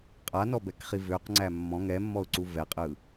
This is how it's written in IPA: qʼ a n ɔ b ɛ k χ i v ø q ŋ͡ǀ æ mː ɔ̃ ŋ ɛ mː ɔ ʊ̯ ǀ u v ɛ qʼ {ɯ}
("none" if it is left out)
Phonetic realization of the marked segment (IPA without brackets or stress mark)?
ɯ